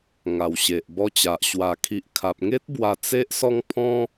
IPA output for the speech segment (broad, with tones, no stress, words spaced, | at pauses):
ŋa˨˩wɕe˨ʔbɔ˧t͡ɕa˨ʔ ɕwa˨˩kʰi˨ʔkʰa˨p̚ŋe˦t̚ bwa˧ t͡se˦ʔsɔ˥˧ŋ pʰɔ̃˦